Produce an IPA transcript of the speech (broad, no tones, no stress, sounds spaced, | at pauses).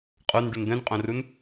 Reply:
qʼ o n ɖ u n d̪ œ̃ n qʼ õ r u n